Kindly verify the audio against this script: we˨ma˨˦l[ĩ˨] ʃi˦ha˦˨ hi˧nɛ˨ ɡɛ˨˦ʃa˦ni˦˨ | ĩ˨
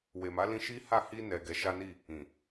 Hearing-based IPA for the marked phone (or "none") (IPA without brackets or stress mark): ĩ˧